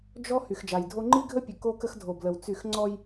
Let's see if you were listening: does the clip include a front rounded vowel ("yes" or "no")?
yes